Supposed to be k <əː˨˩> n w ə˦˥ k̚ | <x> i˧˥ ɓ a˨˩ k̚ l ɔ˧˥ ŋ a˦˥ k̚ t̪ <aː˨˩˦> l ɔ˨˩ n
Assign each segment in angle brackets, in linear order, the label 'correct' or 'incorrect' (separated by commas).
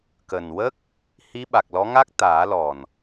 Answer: correct, incorrect, correct